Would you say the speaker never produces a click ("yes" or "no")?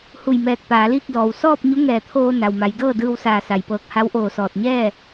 yes